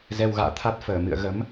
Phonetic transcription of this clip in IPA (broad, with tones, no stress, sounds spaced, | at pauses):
z ɛ˧ w ɣ a̰ː˧˨ t̪ʰ a˦˥ t̚ f əː˧˩ m ɨ̰˧˨ ə̯ ɣ ə˨˦ m